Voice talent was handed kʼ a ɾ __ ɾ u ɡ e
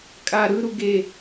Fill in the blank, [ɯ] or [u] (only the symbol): ɯ